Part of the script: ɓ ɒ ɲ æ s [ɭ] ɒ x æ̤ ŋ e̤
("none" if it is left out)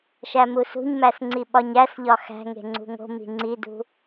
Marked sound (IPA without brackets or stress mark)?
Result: ʎ